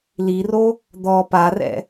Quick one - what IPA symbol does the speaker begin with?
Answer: l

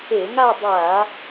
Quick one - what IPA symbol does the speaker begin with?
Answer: e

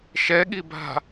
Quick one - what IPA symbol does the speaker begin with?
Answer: ʃ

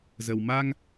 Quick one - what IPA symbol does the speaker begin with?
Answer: z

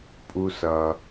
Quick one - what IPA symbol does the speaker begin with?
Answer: pʼ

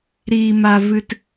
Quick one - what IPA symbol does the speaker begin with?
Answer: ɾ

